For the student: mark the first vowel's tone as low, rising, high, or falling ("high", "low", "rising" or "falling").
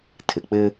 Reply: low